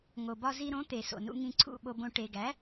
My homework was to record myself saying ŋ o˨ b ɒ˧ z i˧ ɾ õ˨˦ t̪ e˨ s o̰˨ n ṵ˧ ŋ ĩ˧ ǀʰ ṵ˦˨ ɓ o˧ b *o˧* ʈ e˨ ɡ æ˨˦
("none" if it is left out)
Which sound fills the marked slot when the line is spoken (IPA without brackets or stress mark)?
õ˧